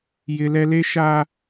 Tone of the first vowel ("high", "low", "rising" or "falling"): high